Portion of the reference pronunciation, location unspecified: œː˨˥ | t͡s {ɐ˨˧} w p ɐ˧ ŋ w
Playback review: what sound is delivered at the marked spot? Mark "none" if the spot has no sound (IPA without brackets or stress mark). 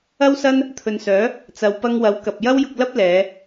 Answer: ɐ˨˧